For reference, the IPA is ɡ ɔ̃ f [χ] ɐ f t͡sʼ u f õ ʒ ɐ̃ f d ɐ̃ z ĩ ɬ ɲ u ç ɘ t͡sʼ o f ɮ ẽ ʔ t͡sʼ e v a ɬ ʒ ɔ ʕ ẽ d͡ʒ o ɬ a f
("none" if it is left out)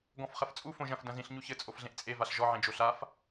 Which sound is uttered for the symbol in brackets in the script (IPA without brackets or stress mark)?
χ